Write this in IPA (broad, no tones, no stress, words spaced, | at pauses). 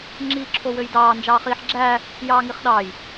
ŋ͡ǁiːǁʰowøjdɑː nd͡ʒɑːχiːħɡ͡ǁæː | jɑːŋiχɗɑːj